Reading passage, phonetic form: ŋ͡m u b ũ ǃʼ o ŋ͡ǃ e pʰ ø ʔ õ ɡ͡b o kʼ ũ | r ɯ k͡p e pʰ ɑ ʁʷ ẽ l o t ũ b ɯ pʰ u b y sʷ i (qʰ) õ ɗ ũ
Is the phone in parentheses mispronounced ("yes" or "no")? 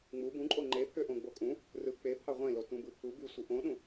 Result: yes